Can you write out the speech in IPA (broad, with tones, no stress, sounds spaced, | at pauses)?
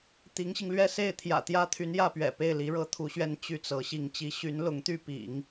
t̪ i˧˥ ŋ ɕ i˧ ŋ l ɥ ɛ˥ s e˥˩ ɪ̯ t̪ʰ j ä̰˨˩ t̪ j ä˥ t̪ʰ y˧˥ n j ä˥˩ p ɥ ɛ̰˨˩ p e˥˩ ɪ̯ l i˧˥ ɻ ɤ˥ t̪ʰ u˧˥ ɕ ɥ ɛ˥ n t͡ɕ y˥˩ t͡s ɤ˧˥ ɕ i˥˩ ŋ t͡ɕ i˧˥ ɕ y˧˥ n l ʊ˧˥ ŋ t̪ y˥˩ p ḭ˨˩˦ ŋ